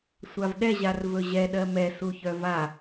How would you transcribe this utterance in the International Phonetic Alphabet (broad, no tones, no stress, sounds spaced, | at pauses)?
sʷ a v ɗ ɛ ʑ a r v ɵ ʑ ɛ ɗ ɜ m ɛ s u ç œ v a